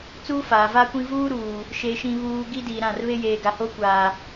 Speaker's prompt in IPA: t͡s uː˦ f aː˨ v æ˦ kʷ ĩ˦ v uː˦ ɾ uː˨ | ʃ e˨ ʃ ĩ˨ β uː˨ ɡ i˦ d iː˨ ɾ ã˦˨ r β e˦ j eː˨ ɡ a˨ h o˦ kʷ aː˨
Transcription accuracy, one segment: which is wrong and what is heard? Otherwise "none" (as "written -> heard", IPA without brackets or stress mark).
æ˦ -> a˦